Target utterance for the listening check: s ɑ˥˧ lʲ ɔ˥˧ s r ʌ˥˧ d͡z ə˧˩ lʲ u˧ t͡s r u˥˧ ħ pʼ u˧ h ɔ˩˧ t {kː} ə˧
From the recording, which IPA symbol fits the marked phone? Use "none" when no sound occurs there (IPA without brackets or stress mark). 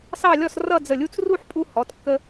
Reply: kː